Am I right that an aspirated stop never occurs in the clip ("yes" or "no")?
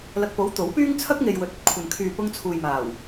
no